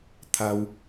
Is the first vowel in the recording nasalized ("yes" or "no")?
no